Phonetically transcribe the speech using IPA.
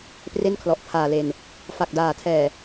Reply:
p r e˥˩ n kʰ l ɔ˨˩ ʔ pʰ aː˨˩ l e˨˩ n | f a˨˩ k̚ d aː˨˩ tʰ ɛː˨˩

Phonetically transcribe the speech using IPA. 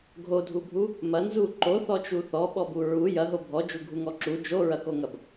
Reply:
ɡʱ o dʱ u bʱ u | m ɐ n z u ǃ o θ ɔ t͡ʃ u θ ɔ ɓ ɔ b u ɹ u j ɐ ɦ o bʱ ɔ d͡ʒ u ɡʱ u ŋ ɔ ǁ u d͡ʒ o ɹ ɐ k o ŋ ɐ b

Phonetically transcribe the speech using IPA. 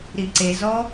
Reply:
ɾ i ǀ e z ɔ

